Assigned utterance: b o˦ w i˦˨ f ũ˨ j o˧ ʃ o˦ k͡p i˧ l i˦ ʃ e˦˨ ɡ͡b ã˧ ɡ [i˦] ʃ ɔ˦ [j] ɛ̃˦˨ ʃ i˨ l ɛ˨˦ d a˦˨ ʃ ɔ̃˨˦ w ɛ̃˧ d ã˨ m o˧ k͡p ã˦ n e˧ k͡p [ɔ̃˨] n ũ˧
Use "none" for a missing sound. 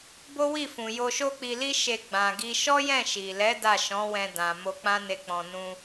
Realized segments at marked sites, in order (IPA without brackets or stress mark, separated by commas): i˦, j, ɔ̃˨